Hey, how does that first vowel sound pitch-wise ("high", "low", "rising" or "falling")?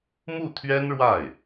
falling